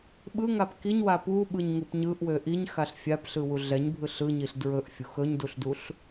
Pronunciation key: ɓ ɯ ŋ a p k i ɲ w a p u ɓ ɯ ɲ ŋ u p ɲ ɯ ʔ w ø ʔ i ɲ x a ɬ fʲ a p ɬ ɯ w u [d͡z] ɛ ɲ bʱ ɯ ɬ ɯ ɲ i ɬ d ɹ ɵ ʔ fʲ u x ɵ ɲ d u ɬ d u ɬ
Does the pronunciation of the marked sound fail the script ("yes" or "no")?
yes